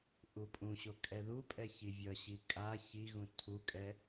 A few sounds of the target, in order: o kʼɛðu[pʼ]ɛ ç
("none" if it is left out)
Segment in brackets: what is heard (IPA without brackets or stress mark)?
pʼ